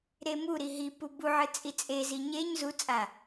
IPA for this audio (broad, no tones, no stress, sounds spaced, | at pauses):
ɾ e m u ɾ i ɦ i p u b u ʕ ɨ t͡sʼ i t͡sʼ e z i ɲ e ɲ z u t͡sʼ a